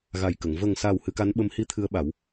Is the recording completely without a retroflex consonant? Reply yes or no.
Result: yes